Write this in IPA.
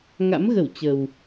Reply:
ŋa̰˧˥mɣə˧˩w t͡ɕə˨˩w

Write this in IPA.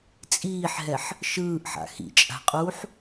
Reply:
t͡sʼiːħɦɛħ | ʃɯːʔħa̰ xḭt͡ʃʼa̤qʼuːħ

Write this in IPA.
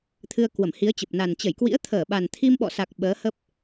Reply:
t̪ʰɨ˧ə̯ kwə˧˩mhi˨˦ə̯t͡ɕə˨˩p̚na˨˩n t͡ɕə˧˩jkwḭ˧˥ə̯t̪ʰəː˧˩ ɓa˨˩nt̪ʰi˧mɓɔ̰˧˨sa˨˩k̚ ɓəː˨˦hə˦˥p̚

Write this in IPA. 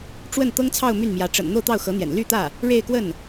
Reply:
ʈ͡ʂwə˥˩n t̪ɤ˥ŋt͡sʰɑ˥˧ʊ̯ my˥˩nmjä˧˥ ʈ͡ʂə̰˨˩n n̪o˥˧ʊ̯t̪ɑ˥˩ʊ̯xɤ˧˥n̪jɛ̰˨˩n ly˥˧t̪ä˥˩ | ɻe˥˧ɪ̯kwə˥˩n

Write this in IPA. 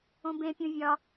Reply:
õbẽpʲũ vʲɒ

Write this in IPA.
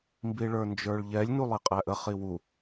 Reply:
mbiɭə˞nd͡ʒə˞ɭʎɛlʲ nulˠiqʼæʔə χiwu

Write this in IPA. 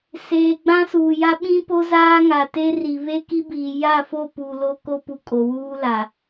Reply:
seː˨ɡ͡bã˦suː˨ja˦ ɓĩ˦po˦zaː˦ ŋa˨te˦ri˨ βe˦ki˦biː˨ ja˦˨fo˦˨ pu˨lo˦ ko˦pu˨ kʼo˨wuː˦la˨

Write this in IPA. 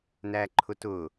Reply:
næǃʰʊtʊ

